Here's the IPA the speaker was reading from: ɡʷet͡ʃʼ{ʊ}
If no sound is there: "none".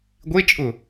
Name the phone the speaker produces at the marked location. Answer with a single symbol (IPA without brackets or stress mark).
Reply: ʊ